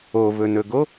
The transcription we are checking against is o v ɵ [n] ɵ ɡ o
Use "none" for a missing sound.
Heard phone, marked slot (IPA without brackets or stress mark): n